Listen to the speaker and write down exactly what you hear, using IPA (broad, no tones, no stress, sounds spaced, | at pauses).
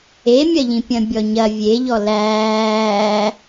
e mʲ ɐ ʎ ĩ pʲ ɐ̃ bʲ ɔ ɲ ɐ vʲ e ʎ ɔ l æː